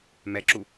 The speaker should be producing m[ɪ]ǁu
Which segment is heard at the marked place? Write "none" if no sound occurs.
ɛ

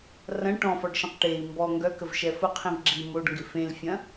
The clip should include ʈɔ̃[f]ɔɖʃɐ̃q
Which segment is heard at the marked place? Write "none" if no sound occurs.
f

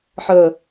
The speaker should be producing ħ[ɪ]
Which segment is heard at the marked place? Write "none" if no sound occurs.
ə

